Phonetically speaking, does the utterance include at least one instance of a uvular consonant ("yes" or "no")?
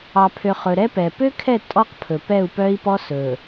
yes